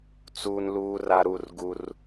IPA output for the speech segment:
t͡s uː˦ n l uː˦ r a˦ ɾ u˦˨ r ɡ u˦ r

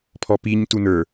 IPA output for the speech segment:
pʰ ɔ p i ɲ t u n ə˞

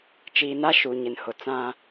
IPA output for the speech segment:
t͡ʃ iː˨ n a˦ ʃ u˨ ɲ ɪ˨ n h ʊ˨ t͡s ã˦

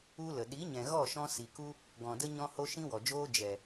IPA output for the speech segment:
u˦ l ə˨ ɗ i˨˦ ɲ ɛ̃˨ ɣ ɔ˦˨ ʃ ɔ̃˧ s i˨ k u˦ | ɡ ɔ̃˨ d ə˦ ɲ ɔ̃˧ h o˧ ʃ ĩ˦ w ɔ˨ d͡ʒ oː˦ d͡ʒ ɛ˨

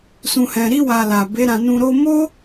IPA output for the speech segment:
s ũ˨ h ɛ̃˨ ɾ i˧ w a˨ l a˨ b e˨˦ ɾ ã˧ n ũ˧ ɾ o˧ m o˦

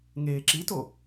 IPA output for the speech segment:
ŋ eː ǁ i t o

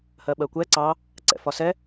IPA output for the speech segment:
h ɜ ɓ ɜ kʷ ɛ ǀ ɑ | ǀ ɛ̰ f ɒ s ɛ

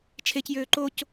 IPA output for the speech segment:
t͡ʃʰ e c j øː ǃ o c

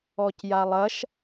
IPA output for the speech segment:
ɔ c j a lˠ ɐ ʃ

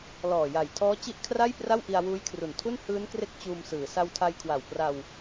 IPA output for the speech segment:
l ɔː˨˩ j a˨˩ j tʰ ɔː˦˥ t͡ɕ i˦˥ ʔ kʰ r a˥˩ j p r a˥˩ w ʔ i˧ a̯ w uː˦˥ j kʰ r u˨˩ n tʰ u˥˩ n h ɯː˦˥ n k r e˦˥ k̚ t͡ɕ uː˧ m s ɯː˩˦ s a˧ w tʰ a˧ j kʰ w a˨˩ w p r a˧ w

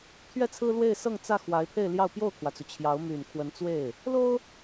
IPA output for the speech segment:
t̪ʰ ɥ ɛ˥˩ t͡sʰ ɹ̩˥ l w e˥˧ ɪ̯ s ɤ˥˧ ŋ t͡s ä˥˩ x w a˧˥ ɪ̯ pʰ e˥˧ ɪ̯ l j ɑ˥˧ ʊ̯ p j o˥˩ ʊ̯ kʰ w ä˩ t͡s u˩ t͡ɕʰ j ɑ˧˥ ʊ̯ m y˨˩ n kʰ w ə˧˥ n t͡s w e˥˩ ɪ̯ | l o˥ ʊ̯

